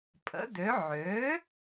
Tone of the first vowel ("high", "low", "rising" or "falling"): rising